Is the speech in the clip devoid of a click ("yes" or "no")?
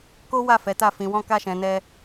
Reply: yes